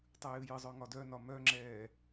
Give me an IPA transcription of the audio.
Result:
tˤ ɨ j ɨ j ɨ zˤ œ ŋ ɒ d œ n ɒ m œ ŋ͡ǁ ɛː

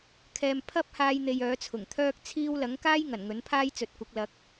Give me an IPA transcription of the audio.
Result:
kʰ ɛː˨ m pʰ ɐ˥ p̚ h aː˧ j n̪ e˨ j œː˨˥ t͡sʰ ʊ˨˩ ŋ t̪ʰ œː˥ k̚ t͡sʰ iː˥ w l ɐ˨˥ ŋ k aː˥ j ŋ ɐ˨˩ n ŋ ɵ˨˥ n pʰ aː˥ j t͡s ɵ˨˥ t̚ kʷ ɐ˨˥ k̚ l ɐ˨˥ k̚

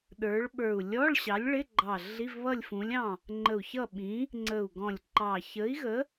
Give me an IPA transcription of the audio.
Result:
ɗ ə˞˨˥ ɭ ɓ ə˞˧˩ u̯ lʲ ɔ˧˥˧ ɭ ɕ ɑ˨˥ lʲ ɭ ɪ˧˥˧ ɡ͡ǃ ɑ˧˩ ɮ i˧˥˧ v β ʌ˥˨ lʲ f ũ˨˥ lʲ ɑ̃˥˨ | ŋ͡ǃ ə˧˩ u̯ ç ʌ˥˨ ɓ ĩ˨˥ | ŋ͡ǀ ə˧˩ u̯ ɡ ɔ̃˧˩ lʲ ǃ ɑ˧˩ ç ə˨˥ i̯ ɣ ə˨˥

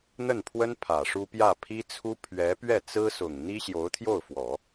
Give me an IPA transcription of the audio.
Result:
n̪ ə˥˩ n pʰ w ə˥ n pʰ ä˨˩ ʂ u˥ p j ä˥˩ pʰ i˥ t͡sʰ u˥ pʰ ɥ ɛ˧˥ p ɥ ɛ˥˩ t͡s ɹ̩˥ s ʊ˨˩ ŋ n̪ i˥ ɕ j o˧˥ ʊ̯ t̪ʰ j o˥˩ ʊ̯ f w ɔ˨˩˦

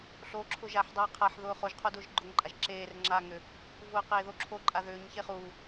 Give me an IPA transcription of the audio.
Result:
ɬ o ǁʰ ʊ ʒ a ħ dˤ aː qʰ a ħ ð ʊː χ o ʒ qʰ o d ʊː ʒ ɡ͡ǃ ʊ ŋ ǃʼ a ʒ ǁ eː r ŋ͡ǁ aː ŋ ʏ | v ʊː q eː ð o ǁʰ o ǃʼ a ð ʏː ɲ ç e χ u

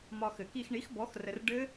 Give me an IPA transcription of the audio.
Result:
m ɒ˧ x ɘ˨˩˦ k i˧ x ɳ i˨˥ x b ɔ˨˥ x r ə˧ r ɖ ɘ˦˥

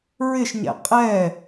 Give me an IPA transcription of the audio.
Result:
ɹ ɪ ʃ ɲ ɛ̰ qʼ ɛ

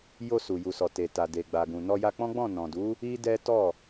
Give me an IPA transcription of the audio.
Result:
j o˧ s u˨ j u˨ s ɔ˨ t e˨ t a˨ d e˨ ɡ͡b a˨ ɡ ũ˨ n ɔ˧ j a˧ k͡p ɔ̃˦ ɡ͡b ɔ̃˦˨ n ɔ̃˨ d u˨˦ | i˦ d ɛ˦ t ɔ˦˨

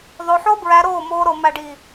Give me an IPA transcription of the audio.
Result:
ðˤ o˧ ħ o˦ b ɹ æ˧ ɾ oː˦˨ m oː˧ ɾ o˨ m æ˨ ɖ i˨

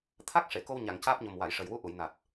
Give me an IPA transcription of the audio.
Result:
t̪ʰ a˦˥ k̚ ʂ e˨˩˨ k o˧ w ɲ a˨˩˨ ŋ c aː˦˥ p̚ ɲ o˨˩ m w a˨˩˨ j ʂ ə˨˩ j w u˧˥ ʔ u˨˩˨ j n a˨˩ t̚

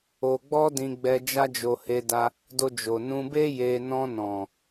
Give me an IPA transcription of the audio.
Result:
o˧ ɡ͡b ɔ˦ d ĩ˧ ɡ͡b ɛ˧ d͡ʒ a˦ d͡ʒ o˧ h e˧ d a˧ | d o˧ d͡ʒ o˨ n ũ˧ b e˦ j e˧ n ɔ̃˧ n ɔ̃˨

